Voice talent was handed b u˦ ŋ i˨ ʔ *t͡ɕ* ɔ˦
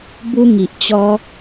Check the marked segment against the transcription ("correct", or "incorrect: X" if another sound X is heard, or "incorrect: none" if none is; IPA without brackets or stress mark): correct